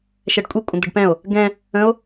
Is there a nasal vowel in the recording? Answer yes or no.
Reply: yes